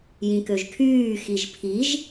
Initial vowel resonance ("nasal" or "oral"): nasal